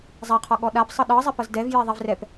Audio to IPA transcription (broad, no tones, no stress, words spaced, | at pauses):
zˤɛqʰɔ ɠɔɗapsˤɤ ɗɤzˤɛpɤz dɛvje ðˤivrɛp